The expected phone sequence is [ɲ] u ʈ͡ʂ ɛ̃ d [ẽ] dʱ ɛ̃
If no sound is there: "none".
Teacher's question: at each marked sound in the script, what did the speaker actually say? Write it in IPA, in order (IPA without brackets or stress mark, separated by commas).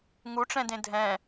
ŋ, ẽ